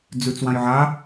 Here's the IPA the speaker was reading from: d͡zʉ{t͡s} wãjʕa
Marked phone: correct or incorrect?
correct